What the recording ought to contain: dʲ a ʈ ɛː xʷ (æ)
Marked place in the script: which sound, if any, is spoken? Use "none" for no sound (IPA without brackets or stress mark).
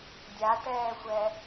ɛ